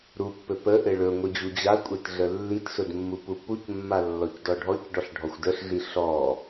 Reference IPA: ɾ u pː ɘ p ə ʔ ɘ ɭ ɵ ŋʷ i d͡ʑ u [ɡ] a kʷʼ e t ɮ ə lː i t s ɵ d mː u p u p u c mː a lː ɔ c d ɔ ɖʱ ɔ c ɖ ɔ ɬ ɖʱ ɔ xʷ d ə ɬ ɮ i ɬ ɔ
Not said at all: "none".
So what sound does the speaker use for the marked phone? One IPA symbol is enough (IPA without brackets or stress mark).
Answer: d͡ʑ